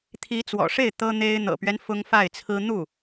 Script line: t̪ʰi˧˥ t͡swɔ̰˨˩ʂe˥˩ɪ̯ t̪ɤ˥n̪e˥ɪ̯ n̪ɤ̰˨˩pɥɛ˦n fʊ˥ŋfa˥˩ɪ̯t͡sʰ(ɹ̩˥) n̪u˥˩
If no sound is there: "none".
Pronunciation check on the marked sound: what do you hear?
ɹ̩˥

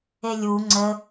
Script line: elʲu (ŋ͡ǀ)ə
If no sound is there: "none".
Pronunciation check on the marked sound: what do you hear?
ŋ͡ǀ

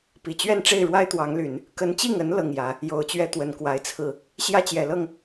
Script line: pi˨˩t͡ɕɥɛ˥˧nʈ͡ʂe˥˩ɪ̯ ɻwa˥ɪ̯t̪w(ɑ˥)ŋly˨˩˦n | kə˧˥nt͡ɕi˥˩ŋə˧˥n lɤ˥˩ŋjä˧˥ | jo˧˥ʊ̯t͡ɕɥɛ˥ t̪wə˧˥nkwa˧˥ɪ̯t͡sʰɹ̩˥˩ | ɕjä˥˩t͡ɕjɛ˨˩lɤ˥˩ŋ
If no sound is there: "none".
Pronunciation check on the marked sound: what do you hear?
ɑ˧˥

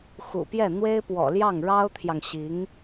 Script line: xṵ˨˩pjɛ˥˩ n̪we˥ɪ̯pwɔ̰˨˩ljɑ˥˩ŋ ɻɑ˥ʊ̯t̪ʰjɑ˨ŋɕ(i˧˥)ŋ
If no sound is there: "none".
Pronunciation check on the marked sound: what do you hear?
i˧˥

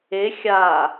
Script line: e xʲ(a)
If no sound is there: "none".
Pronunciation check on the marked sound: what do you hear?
a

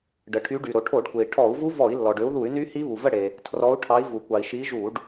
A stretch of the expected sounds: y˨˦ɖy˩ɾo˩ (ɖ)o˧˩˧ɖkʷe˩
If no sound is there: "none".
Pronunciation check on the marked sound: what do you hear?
ʈʰ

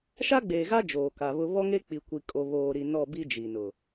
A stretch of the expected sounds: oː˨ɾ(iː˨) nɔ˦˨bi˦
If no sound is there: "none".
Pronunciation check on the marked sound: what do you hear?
i˨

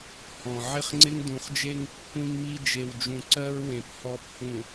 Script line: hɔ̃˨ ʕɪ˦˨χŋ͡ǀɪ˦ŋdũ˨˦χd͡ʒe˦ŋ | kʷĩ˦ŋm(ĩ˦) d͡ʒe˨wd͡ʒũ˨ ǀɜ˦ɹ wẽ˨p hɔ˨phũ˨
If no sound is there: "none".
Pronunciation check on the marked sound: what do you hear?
i˦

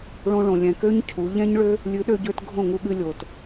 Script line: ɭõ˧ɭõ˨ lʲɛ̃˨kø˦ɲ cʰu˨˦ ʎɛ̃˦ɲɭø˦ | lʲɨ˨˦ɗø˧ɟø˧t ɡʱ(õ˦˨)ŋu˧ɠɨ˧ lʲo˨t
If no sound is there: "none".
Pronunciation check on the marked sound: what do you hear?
õ˦˨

